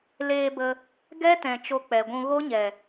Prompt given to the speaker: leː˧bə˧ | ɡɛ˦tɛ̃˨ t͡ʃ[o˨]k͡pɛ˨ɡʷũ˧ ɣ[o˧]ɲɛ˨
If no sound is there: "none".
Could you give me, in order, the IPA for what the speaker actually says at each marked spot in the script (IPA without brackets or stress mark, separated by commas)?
o˧, o˦